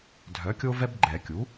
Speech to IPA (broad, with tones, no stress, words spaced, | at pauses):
dʱœ˩˥kʲo˦vɛ˦b ɡ͡ǃɛ˨˩˦kʲu˩˥